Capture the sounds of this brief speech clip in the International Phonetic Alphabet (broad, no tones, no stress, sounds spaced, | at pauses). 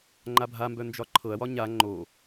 ŋ͡ǃ a bʱ a m b œ n d͡ʒ ɒ ǃʰ ɤ ɐ̯ w ɒ ɲ a ŋ͡ǃ o